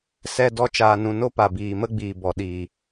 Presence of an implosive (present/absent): present